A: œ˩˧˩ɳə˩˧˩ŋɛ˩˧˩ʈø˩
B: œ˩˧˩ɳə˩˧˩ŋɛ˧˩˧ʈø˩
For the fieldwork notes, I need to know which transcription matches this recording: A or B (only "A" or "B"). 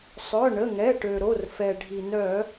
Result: A